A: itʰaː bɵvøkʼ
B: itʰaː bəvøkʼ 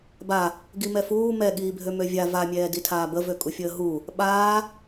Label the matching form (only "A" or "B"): B